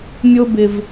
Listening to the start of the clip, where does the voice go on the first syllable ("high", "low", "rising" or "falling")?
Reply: high